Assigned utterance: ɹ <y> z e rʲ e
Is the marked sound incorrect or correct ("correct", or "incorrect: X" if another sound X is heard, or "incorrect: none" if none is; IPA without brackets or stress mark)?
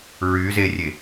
correct